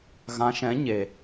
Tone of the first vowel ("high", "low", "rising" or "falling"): rising